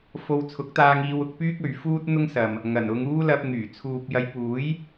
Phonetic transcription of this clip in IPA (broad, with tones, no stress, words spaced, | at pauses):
fo˧w t͡sʰʊ˨˥k̚t̪aː˧ŋiː˧wʊ˧k̚ pyː˥k̚ɵ˨ɥfuː˥t̚ n̪ʊ˥ŋsɐ˨m | ŋɐ˨˩nʊ˧ŋuː˥ lɐ˧p̚ŋyː˨˩ t͡sʰuː˨p̚jɐ˨˧j puː˨˥j